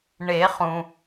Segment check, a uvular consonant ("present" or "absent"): present